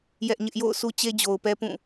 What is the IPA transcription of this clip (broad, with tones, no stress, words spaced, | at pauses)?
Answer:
jɛ˦ʔɲɪ˦ʔ jo̰˦˨ʊ̯ su˦t͡ɕe˦ d͡ʑo˨ʊ̯pɛ˦pũ˦˨